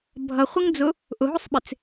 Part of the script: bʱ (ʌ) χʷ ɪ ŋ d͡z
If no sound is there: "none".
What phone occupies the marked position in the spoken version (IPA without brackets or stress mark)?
ʌ